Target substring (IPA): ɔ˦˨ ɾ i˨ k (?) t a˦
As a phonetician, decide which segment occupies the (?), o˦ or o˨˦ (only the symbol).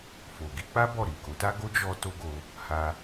o˨˦